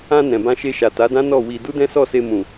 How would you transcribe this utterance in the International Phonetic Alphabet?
ã˧ n ɛ̃˨ b ã˧ ʃ e˧ ʃ a˨ t a˨˦ d ã˦ n ɔ˦˨ w i˧ d u˦ d ɛ̃˦ s ɔ˦˨ s e˧ m ũ˨

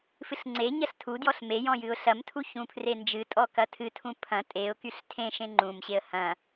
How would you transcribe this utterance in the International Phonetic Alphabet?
f ɨ ɬ ŋ͡ǀ e ɲ ɐ ɬ tʰ u d j ɔ ɬ m e j ɔ̃ j ɨ ʊ̯ ɬ ɐ m tʰ u ç ũ pʰ r e n d͡ʒ ɨ tʼ ɔ k ɐ tʰ ɨ tʰ ũ pʰ ɐ̃ tʼ e ʊ̯ k y ɬ tʰ ẽ ʃ ẽ ŋ͡ǃ ũ m ɕ e ə̯ h ɐ̃

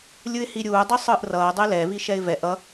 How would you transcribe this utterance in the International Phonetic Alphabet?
lʲ ɯ ɪ̯ h i ɾʲ uː dˤ ɯ sˤ ɯː ʔ r ʌː dˤ e l ɛ v i ʃ ɛ ɪ̯ v ɛ ʔ ʌ

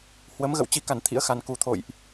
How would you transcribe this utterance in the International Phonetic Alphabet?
h w ə˨˦ m ɣ ə̰˧˨ w t͡ɕ i˨˩ k a˧˩ n t̪ʰ ḭ˧˥ ə̯ x a˨˩ n k u˨˩ t̪ʰ o̰˧˨ j ʔ

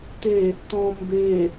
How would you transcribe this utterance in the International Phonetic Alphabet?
t̪ e | t̪ ɔ̃ m b e

